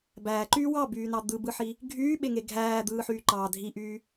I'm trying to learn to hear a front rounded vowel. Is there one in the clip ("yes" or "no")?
yes